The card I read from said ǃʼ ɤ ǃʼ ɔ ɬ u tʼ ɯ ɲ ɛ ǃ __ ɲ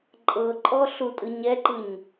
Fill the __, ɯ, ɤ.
ɯ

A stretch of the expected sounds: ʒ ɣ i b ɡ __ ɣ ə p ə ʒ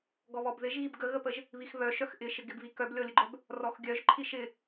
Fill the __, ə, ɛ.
ə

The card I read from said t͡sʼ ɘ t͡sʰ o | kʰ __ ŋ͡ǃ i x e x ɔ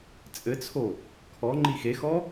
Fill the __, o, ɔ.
ɔ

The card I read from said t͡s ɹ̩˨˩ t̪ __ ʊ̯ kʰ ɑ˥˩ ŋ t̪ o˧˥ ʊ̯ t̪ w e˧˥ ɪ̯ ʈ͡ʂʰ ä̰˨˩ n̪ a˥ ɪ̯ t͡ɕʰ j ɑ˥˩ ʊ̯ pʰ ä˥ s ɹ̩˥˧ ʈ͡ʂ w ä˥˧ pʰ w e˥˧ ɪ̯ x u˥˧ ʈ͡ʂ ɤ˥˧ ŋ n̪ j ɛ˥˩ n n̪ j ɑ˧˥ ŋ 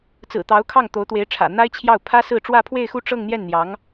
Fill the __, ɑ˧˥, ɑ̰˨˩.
ɑ˧˥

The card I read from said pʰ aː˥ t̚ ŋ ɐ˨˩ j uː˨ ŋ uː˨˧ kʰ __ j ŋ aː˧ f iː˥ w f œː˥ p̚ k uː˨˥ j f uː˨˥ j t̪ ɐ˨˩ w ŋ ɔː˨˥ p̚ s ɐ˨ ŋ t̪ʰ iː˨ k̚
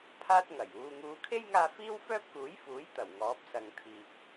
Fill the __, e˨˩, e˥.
e˥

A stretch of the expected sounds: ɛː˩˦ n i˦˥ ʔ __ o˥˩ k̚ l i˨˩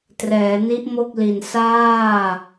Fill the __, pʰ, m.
m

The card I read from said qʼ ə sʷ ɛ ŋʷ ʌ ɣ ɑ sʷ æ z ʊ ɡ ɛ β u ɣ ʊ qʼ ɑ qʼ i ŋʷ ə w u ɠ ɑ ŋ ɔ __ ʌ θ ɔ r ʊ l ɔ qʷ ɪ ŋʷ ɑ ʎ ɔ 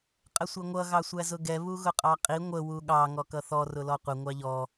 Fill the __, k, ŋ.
k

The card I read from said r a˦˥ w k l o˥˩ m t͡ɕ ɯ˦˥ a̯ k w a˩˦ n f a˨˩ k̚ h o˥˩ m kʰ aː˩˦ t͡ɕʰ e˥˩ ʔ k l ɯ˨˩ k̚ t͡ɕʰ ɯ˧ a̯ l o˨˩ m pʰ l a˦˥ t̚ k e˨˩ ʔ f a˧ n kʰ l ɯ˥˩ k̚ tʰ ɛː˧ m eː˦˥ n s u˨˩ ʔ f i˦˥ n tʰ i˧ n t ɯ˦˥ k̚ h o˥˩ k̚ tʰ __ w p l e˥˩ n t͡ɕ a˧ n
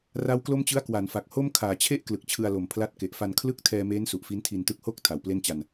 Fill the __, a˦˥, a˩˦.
a˩˦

